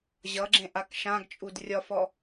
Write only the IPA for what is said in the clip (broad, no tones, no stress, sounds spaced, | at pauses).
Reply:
ʑ ʌ ɡ͡ǁ ẽ ʔ a k ʃ ã ɡ t͡ʃʼ u d rʲ ɒ f ɔ